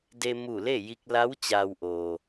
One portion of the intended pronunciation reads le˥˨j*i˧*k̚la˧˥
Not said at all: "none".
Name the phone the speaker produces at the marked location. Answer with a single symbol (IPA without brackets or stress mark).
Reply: i˧